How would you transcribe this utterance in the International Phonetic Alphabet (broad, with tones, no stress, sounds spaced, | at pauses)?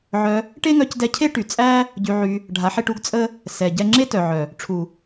ʕ œ˧ | ʈ e˦ ŋ œ˧ c d ɛ˧ cʰ e˦ ʈ y˨ t͡sʼ æ˦ | ɟ y˧ ʕ y˧ | ɖʱ a˨˦ ħ e˧ ʈ u˦ ɡ t͡sʼ ə˦ | s ɛ˨ ɟ ɛ˦ ŋ͡ǁ e˦ t œ˨ ʕ œ˨ | ʈ͡ʂʰ u˨